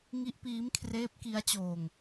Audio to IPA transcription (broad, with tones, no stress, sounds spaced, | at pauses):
ŋ i˦˥ ʔ p iː˦˥ m kʰ r eː˦˥ p̚ k i˦˥ a̯ t͡ɕ oː˧ ŋ